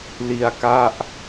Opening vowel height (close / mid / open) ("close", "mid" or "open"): close